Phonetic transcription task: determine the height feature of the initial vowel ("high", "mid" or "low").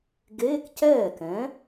mid